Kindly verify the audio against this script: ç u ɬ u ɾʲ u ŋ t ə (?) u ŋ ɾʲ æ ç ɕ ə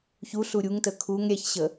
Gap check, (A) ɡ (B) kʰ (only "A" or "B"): B